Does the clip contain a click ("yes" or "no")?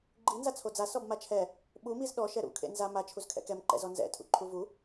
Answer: yes